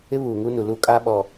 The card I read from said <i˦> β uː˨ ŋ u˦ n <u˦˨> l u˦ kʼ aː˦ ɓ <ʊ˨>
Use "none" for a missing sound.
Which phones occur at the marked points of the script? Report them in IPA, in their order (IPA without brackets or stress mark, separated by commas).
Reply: ɪ˦, u˨, ɔ˨